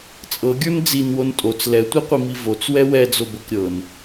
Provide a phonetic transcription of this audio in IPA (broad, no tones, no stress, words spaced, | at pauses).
t͡sʼɤɡʲə˞n d͡zinwon tʼot͡s lɛtʷɤqʷimi vot͡swɛ wɛd͡zobɤk ɾʲɤn